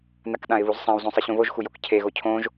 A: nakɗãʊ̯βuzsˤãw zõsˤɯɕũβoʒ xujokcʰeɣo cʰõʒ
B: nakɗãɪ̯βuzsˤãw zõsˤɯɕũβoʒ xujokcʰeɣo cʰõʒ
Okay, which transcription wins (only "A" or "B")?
B